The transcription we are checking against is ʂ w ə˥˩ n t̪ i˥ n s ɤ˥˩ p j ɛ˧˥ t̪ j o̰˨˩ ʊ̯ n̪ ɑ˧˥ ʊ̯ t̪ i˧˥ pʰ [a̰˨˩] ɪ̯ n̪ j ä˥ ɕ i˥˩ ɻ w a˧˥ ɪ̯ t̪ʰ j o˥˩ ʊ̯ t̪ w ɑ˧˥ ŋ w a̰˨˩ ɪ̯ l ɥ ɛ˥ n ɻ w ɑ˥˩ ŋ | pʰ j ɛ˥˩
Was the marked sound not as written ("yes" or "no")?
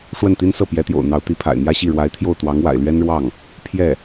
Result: no